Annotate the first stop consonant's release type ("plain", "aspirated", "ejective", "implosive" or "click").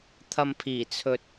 aspirated